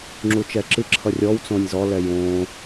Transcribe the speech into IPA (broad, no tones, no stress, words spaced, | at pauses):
ŋ͡ǁut͡ʃɛǁɨǁʰʌ rʲɔw t͡sõnʲzɔlɛ jõ